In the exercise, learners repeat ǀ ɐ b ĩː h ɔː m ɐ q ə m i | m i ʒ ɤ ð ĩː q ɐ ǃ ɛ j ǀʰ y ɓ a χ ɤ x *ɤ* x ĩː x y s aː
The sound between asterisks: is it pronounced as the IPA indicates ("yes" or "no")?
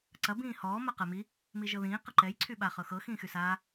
yes